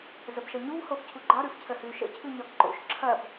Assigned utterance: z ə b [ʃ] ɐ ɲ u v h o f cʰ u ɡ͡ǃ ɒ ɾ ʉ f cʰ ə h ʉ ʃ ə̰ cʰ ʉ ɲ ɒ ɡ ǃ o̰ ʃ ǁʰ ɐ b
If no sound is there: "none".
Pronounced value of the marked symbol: ʃ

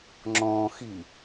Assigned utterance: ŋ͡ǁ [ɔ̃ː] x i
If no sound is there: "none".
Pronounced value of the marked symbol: ɔ̃ː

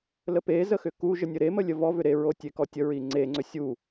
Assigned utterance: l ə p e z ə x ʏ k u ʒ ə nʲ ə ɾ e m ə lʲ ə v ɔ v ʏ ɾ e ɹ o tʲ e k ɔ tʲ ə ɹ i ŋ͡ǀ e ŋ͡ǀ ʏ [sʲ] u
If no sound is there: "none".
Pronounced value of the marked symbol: sʲ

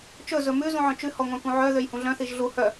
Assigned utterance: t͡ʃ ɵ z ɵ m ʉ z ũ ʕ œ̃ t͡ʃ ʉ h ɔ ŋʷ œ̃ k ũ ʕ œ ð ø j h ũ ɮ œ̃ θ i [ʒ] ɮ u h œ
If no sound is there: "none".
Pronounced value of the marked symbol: ʒ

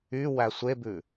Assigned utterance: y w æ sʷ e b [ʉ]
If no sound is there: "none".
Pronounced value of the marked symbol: ʉ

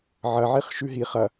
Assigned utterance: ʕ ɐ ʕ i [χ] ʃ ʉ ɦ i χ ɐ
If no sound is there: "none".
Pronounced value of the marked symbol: χ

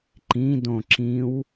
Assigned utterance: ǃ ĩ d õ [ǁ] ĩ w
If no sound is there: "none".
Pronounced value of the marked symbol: ǁ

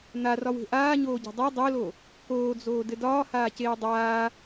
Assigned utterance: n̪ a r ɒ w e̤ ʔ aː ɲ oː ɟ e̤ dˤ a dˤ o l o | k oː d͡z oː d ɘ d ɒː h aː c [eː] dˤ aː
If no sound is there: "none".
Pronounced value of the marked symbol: eː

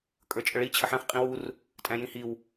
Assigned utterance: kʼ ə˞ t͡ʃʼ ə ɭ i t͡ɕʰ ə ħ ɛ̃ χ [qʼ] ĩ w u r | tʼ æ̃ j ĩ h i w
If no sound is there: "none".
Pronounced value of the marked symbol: qʼ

